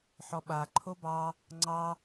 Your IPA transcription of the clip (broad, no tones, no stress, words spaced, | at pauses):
ħɔɓa ǃʰobɑ | ŋ͡ǀɑ